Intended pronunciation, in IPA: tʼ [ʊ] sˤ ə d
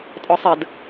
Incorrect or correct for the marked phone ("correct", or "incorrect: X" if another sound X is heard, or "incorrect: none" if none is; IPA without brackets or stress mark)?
incorrect: ɔ